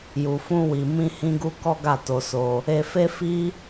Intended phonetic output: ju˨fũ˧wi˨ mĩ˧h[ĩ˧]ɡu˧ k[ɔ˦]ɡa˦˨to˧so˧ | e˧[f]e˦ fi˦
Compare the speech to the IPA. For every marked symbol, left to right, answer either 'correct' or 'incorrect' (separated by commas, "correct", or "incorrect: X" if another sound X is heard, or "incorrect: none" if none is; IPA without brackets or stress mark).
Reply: correct, correct, correct